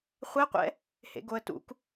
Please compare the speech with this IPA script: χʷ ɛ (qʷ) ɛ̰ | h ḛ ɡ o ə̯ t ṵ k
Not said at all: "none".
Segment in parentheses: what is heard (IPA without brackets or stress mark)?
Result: qʷ